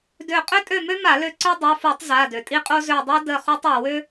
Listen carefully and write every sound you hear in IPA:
dø˦˨ qʼø˥tʼø˦˨mø˥ma˧˩˧ lø˦˨ǀø˥ dˤo˩˧˩fu˧˩˧tˤ za˩˧˩dø˩ tʼi˥qʼo˥zø˦˨ dˤi˥ də˦˨ χu˥tˤ o˩wø˥

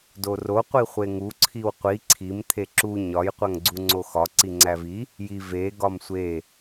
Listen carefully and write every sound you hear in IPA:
doro qʷiχʷeŋu ǀʰiwqʷi ǀʰim t̪ʰeǁu ɲɒj qʷæŋɡ͡ǀuŋ͡ǀoxɒ ǀiŋ͡ǀævi | ji ve ɡɒmsʷe

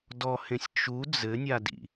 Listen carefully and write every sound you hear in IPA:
dɔhẽsʲ t͡ʃu d͡zɘnʲa dḭ

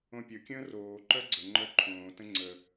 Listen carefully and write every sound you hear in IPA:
õpʲɵkʲə̃ː roː ǃœɡ͡ǀəŋ͡ǃœ ǃʰõːtə̃ ŋ͡ǀə

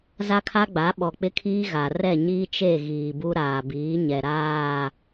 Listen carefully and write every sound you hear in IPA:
za˦kʰa˦ɡ͡ba˨˦ ɓɔ˨k͡pɪ˦kʰiː˦ɣa˨ rɛ˦˨ɲiː˦t͡ʃe˦˨ ɣiː˨bu˦ ɾaː˨biː˨˦ɲɛ˨ ɾaː˦˨

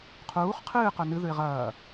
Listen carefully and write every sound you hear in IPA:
qʰuːχ qʰɨːqɵ nɨðʉɪ̯ ʁɐː

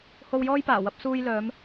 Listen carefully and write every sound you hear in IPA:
ho˧wjɔː˥jpaː˨˩ wɐ˧p̚ suː˧jlœː˨˧m

